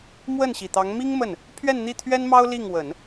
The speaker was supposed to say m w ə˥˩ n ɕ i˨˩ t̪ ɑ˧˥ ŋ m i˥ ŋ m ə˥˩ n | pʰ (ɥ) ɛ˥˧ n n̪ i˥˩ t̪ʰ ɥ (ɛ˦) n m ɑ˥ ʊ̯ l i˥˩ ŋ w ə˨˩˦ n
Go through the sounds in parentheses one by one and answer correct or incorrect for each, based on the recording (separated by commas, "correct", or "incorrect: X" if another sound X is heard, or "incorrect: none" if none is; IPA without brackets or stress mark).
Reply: correct, incorrect: ɛ˥